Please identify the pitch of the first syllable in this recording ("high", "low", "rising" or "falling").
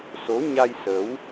rising